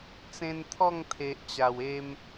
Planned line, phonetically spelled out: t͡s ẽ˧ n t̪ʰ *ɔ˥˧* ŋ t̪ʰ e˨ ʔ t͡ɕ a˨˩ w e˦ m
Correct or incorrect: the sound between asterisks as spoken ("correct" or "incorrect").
correct